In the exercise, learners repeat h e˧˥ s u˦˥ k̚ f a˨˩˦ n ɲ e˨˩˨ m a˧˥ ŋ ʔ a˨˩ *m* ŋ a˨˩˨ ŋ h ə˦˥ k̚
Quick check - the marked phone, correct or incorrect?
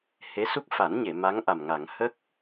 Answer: correct